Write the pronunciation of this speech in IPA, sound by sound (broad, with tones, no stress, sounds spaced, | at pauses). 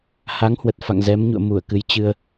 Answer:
h a˨˦ ŋ h w ə˨˩ t̚ f a̰˧˨ ŋ z ɛ˨˦ m ɲ ṵ˧˨ ə̯ m u˧˩ ə̯ k ɨ˨˦ j t͡ɕ ɨ˧ ə̯